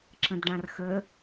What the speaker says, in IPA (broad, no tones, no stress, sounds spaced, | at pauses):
ǁ ə̃ d ɖ ã r x ə